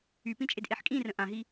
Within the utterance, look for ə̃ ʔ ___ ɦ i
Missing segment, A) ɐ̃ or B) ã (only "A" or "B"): B